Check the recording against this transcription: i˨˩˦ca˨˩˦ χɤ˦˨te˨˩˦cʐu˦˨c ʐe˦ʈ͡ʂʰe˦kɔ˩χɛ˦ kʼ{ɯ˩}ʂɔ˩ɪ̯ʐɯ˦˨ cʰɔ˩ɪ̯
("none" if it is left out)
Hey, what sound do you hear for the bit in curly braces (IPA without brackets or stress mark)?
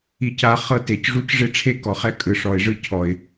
ɯ˩